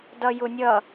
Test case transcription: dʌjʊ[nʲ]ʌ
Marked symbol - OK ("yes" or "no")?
yes